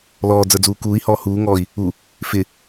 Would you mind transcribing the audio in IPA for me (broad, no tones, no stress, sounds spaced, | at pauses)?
l ɔː d͡z ə˞ d͡z uː k uː i̯ h ɔː h uː ŋ ɔː i̯ | u | f ɪ